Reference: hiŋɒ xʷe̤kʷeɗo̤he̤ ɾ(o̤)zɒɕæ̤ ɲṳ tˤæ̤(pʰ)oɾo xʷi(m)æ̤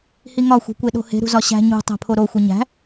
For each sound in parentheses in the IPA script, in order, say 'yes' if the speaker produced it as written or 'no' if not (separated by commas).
no, yes, no